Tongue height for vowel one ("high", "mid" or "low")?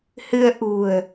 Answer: high